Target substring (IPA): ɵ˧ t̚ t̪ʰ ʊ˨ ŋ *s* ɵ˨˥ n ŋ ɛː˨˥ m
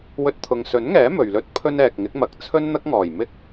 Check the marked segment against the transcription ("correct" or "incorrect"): correct